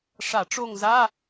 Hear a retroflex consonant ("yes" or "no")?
yes